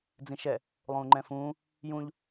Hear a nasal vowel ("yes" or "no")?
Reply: yes